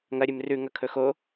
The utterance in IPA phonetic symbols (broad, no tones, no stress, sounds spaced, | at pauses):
ŋ ɐ ɾʲ ɨ m r ʉ ŋ ɐ kʰ ɵ x o